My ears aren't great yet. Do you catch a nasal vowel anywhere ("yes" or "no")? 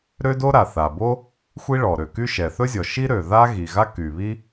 no